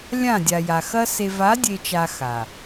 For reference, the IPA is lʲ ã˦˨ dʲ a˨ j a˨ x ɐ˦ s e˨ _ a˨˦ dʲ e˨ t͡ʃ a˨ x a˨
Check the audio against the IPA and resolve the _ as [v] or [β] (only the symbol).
v